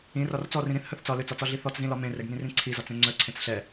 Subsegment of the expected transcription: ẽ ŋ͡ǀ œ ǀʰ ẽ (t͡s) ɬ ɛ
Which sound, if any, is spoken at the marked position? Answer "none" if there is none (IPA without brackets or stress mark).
t͡s